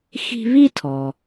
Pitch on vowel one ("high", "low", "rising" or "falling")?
high